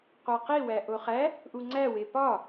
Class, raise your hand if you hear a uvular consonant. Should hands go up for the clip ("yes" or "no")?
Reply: yes